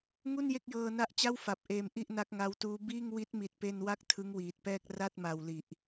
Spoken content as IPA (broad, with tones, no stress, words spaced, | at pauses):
ŋu˥˩n je˥˩k̚jɤː˧na˦˥ʔt͡ɕa˥˩w fa˨˩p̚ ʔeː˧mʔi˥˩ʔ na˦˥k̚ŋa˧wtuː˦˥ biː˥˩ŋ wi˦˥t̚mi˨˩t̚ pe˧nwa˦˥k̚ tʰɯ˦˥ŋwiː˨˩t̚pɛː˥˩k̚ ra˥˩t̚ma˨˩w li˨˩ʔ